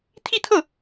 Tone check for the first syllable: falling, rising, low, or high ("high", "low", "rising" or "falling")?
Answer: falling